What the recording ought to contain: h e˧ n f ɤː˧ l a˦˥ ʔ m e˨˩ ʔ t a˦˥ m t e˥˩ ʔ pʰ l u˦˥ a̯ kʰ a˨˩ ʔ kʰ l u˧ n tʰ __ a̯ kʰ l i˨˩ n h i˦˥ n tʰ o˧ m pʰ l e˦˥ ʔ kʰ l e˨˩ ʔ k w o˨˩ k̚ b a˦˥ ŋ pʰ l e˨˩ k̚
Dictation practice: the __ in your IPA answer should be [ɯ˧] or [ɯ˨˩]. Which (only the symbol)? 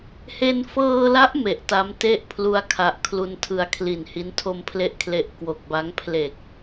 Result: ɯ˧